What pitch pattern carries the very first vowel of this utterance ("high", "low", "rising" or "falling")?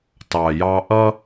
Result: low